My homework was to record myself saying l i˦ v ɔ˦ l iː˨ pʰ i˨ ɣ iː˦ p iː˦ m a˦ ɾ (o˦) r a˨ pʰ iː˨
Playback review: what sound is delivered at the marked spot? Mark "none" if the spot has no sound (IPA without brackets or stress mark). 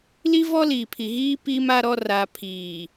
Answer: ɔ˦